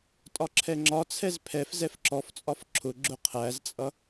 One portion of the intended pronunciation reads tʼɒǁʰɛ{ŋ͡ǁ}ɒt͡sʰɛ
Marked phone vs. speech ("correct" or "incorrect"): correct